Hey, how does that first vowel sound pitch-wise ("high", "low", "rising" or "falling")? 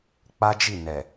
high